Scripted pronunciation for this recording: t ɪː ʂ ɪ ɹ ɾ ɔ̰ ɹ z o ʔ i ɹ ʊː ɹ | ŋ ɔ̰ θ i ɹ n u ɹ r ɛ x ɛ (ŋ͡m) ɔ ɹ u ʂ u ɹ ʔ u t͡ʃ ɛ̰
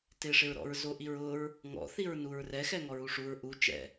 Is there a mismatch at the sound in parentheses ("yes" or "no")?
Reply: yes